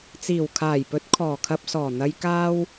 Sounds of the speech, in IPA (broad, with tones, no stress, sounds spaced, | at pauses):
t͡s iː˨˩ w kʰ aː˨˩ j p ɵ˨˥ t̚ kʰ ɔː˨˩ kʰ ɐ˧ p̚ s ɔː˨˩ n̪ ɐ˧ j k aː˥ w